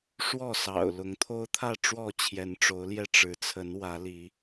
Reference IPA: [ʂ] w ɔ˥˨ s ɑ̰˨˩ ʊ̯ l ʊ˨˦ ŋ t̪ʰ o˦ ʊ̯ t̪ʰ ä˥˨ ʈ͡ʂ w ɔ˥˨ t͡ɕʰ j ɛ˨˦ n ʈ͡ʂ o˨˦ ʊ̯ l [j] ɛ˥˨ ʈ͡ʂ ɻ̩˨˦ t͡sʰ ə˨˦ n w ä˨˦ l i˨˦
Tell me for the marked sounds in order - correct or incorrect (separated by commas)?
correct, correct